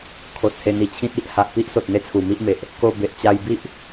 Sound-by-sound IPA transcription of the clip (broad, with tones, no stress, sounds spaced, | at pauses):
kʰ o˨ t̚ h e˧ n̪ i˧ t͡ɕʰ ĩ˦ t̚ i˦ ʔ h a˨ ʔ p i˦ ʔ s o˨ t̚ n̪ e˦ t͡sʰ u˨˩ m i˦ ʔ m e˨ ʔ | k o˧ b e˨ ʔ t͡ɕ a˧ j b i˦ ʔ